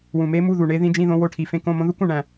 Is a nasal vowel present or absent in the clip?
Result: present